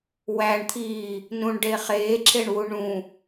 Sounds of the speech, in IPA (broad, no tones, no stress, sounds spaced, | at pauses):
w æ ɳ t̪ʰ iː | n ũ ɳ ɖ e χ eː ǁʰ e ɳ w u ɳ ũ